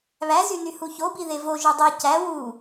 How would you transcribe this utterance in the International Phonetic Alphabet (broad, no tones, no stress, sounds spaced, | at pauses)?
β æ z y n y h u ç o b i ð e v o ʒ ø dˤ y c æ w u